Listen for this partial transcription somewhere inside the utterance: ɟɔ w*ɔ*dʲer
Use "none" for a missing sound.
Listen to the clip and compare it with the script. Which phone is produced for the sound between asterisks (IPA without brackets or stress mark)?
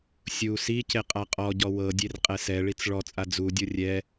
ɤ